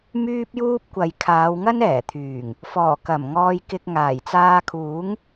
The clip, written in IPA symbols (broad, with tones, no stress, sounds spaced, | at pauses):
m yː˥ p̚ j uː˥ p̚ kʷ ɐ˨ j kʰ aː˨˧ w ŋ ɐ˥ n ɛː˨˩ t̪ʰ yː˨˩ ŋ | f ɔː˨˩ k ɐ˨˩ m ŋ ɔː˧ j k ɪ˧ k̚ ŋ aː˨˩ j t͡s aː˧ kʰ uː˨˥ ŋ